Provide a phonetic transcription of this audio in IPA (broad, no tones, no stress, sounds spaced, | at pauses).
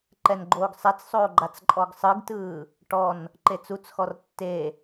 ǃ ɛ n ɡ͡ǃ oː ɡ sˤ ɛ t͡s sˤ oː ɡ͡ǃ a t͡s ǃʼ ɔ ɡ sˤ ɯ ɡ t ɯː | ʈ ɔ n | ǃ e t͡s u t͡s x ɔ r tː e